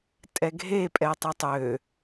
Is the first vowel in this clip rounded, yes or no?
no